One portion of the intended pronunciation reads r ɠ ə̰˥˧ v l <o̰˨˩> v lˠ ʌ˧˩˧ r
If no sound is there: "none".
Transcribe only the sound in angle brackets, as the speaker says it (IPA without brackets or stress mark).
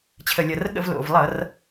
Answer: o̰˨˩